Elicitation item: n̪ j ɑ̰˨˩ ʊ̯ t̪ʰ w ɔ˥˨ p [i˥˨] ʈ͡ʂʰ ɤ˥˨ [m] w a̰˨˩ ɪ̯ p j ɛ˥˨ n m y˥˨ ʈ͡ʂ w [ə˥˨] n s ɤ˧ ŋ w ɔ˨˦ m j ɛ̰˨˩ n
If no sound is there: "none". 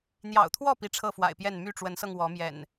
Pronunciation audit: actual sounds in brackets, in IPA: i˦, f, ə˨˦

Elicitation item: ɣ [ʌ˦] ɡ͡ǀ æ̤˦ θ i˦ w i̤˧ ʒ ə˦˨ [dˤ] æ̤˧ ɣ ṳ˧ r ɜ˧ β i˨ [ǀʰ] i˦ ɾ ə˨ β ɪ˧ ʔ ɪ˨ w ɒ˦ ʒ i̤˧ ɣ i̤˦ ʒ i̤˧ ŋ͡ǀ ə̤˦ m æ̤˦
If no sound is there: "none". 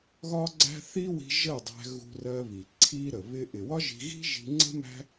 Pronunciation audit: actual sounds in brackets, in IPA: ɒ˦, dˤ, ǀʰ

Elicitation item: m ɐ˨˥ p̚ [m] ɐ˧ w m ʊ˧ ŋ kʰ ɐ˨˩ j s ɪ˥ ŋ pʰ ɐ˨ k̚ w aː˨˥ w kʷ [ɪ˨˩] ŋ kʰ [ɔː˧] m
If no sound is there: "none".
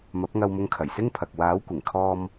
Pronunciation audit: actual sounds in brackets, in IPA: ŋ, ɪ˨˩, ɔː˧

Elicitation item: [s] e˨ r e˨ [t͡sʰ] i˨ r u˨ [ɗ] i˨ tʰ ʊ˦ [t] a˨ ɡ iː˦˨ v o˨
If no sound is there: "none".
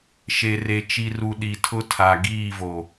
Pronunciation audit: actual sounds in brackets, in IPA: ʃ, t͡ʃ, ɗ, tʰ

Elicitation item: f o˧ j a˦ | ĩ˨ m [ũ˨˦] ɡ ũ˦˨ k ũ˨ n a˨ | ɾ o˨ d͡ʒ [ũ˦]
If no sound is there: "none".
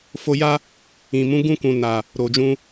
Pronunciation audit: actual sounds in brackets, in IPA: ũ˨˦, ũ˧

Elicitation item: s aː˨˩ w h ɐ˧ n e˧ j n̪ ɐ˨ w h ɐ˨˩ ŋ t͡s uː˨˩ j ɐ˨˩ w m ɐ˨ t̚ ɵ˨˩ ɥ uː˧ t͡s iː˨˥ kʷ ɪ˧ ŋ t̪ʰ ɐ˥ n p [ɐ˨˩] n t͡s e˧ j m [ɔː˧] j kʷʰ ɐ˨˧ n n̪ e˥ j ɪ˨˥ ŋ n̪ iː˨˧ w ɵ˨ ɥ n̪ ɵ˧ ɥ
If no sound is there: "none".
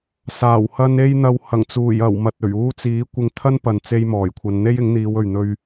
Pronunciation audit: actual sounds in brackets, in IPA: ɐ˨, ɔː˨˩

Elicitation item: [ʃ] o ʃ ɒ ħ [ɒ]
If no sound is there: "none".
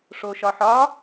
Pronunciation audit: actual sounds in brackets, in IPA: ʂ, ɒ

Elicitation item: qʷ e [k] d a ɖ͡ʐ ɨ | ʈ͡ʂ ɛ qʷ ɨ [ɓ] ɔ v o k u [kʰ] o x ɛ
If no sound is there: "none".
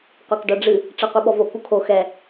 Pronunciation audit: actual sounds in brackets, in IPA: k, ɓ, kʰ

